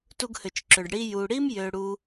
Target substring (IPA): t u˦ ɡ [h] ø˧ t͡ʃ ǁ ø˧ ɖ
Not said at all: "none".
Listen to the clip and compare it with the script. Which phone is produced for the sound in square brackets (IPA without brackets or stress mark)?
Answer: h